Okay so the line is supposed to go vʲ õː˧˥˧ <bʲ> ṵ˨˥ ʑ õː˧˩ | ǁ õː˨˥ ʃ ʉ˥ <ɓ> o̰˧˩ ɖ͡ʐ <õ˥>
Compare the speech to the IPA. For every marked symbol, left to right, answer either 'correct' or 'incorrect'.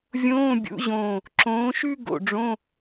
correct, incorrect: ɡ, incorrect: õ˧˥˧

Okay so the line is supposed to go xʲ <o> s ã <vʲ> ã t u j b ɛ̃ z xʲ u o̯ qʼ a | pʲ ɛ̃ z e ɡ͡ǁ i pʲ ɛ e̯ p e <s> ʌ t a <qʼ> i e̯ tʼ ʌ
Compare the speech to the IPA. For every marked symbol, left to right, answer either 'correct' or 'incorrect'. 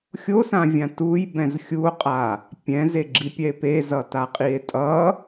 correct, correct, incorrect: z, correct

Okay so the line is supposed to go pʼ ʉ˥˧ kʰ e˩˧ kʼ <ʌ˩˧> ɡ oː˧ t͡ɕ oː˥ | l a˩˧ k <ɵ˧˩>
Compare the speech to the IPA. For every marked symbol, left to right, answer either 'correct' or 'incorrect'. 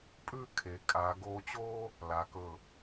incorrect: a˩˧, correct

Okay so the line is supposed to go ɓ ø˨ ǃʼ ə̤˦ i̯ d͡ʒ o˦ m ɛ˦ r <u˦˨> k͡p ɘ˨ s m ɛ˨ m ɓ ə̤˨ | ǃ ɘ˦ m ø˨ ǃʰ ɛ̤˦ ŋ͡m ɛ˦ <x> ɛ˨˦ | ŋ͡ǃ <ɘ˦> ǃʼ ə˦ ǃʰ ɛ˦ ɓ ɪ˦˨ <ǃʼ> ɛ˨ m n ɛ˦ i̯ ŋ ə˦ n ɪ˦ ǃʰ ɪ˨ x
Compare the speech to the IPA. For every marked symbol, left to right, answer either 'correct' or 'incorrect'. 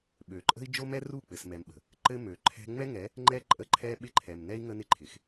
correct, incorrect: ŋ, incorrect: ɛ˦, incorrect: ǃʰ

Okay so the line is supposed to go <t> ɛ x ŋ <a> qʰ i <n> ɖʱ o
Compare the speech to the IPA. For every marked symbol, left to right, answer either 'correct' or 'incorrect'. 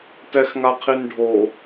correct, correct, correct

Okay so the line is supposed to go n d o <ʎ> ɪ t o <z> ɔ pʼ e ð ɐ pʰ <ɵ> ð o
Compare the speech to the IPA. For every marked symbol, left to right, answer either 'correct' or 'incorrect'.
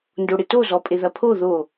incorrect: ɽ, correct, incorrect: o

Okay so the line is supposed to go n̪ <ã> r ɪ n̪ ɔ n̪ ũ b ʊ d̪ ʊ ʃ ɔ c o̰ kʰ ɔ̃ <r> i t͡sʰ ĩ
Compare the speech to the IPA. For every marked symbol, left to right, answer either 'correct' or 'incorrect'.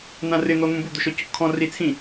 correct, correct

